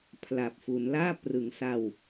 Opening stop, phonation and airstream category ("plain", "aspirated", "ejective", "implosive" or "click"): aspirated